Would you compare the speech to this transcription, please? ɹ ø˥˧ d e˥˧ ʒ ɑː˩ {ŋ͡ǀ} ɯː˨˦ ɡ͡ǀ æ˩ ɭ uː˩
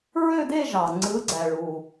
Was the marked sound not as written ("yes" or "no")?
no